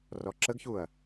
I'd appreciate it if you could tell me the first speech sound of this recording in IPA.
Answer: r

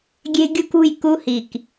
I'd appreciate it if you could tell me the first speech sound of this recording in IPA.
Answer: ɡʲ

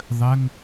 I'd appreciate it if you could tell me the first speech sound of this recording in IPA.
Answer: ðˤ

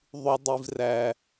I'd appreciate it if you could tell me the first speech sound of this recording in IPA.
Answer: ðˤ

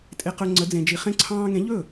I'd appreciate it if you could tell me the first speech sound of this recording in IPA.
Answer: tʼ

